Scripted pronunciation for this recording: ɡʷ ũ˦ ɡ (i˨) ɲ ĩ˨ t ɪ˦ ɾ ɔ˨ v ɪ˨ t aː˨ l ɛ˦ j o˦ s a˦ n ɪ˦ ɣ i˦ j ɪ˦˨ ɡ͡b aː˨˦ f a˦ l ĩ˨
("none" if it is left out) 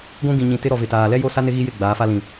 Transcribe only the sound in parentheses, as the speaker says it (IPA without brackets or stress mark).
ĩ˨